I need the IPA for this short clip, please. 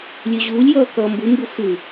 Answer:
lʲʉʑuːlʲjʌː kʌːmbumbu xʉ

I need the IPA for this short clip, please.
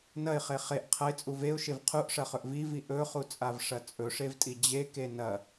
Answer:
nɐɪ̯χe χeʔ qʰɐɪ̯t͡sʼu veʊ̯ʃev qʰuʔʂɐχɵʔ vivi ʔɵχut͡sʼavʂɐ t͡sʼɵʂevtʼi d͡ʑeke nɐ

